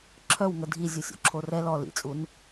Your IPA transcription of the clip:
ǁʰœw ŋədʱi zʲusʲo̰ǁʰorɛ lɔ lḭt͡sʼun

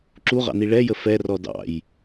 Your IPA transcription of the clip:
ǁuʁɑ̰ni ɭɛjə fɛrɔ dɑ̰j

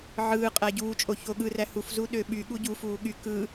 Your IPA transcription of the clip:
ʕɯː qʼæɟuːt͡ʃʼo çoɠɯræ hufzu ɗøɓyɠu ɟufuː ɠy kɯ

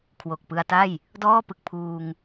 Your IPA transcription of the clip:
kʰwo˨˩k̚pɯ˧a̯ta˥˩j | dɔː˥˩pɯ˨˩k̚ pʰuː˧ŋ

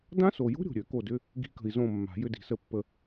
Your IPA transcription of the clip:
dã˦˥so˨jo̤˦˥ ɾʲo̤˨ɾʲø˨˩˦ ko˦˨dʏ˧˥˧ | ɡi̤˦˥kə̤˨i̯zõ˦˨ mːa̤˨˩˦ jʏ˧˥˧di̤˨sə˦˨pːə˦˨

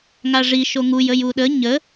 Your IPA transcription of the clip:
ŋaʐi ʃoŋuj əjuɗə ɲə

